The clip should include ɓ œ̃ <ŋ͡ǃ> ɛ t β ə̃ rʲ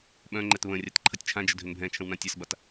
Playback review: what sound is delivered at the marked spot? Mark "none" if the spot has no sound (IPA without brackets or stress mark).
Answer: ŋ͡ǃ